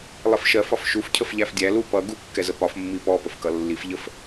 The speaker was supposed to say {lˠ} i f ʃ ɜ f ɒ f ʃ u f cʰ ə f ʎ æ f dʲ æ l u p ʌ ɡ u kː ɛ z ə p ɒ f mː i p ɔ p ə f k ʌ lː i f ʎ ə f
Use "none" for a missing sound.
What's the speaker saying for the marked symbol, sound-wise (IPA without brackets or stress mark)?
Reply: lˠ